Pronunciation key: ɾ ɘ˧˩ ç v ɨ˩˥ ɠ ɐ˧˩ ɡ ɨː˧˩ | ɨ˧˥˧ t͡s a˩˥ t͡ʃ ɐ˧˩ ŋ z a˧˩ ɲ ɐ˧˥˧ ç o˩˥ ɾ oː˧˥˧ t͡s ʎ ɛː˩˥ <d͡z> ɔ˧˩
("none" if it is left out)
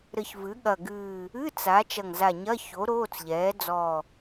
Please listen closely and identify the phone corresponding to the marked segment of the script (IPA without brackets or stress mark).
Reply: d͡z